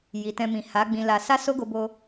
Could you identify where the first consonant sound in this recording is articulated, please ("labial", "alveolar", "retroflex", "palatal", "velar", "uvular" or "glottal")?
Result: palatal